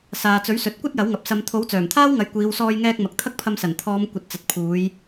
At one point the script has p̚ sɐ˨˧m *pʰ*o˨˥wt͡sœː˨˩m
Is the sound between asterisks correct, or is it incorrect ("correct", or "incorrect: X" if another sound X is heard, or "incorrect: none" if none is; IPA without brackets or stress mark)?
incorrect: t̪ʰ